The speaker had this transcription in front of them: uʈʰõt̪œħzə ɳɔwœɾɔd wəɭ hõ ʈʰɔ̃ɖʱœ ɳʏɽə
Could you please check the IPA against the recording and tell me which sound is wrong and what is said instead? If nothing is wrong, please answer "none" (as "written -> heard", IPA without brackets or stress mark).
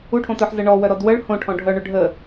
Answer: ɽ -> ɖʱ